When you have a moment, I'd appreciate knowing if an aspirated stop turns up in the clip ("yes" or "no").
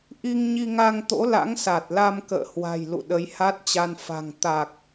no